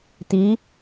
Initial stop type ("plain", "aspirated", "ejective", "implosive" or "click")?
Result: plain